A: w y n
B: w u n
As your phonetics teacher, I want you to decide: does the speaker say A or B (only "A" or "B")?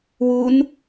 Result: B